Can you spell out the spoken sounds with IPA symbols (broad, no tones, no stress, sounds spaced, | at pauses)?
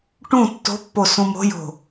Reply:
ʈ ũ tː o̤ pː o s ũ m o̤ j o̤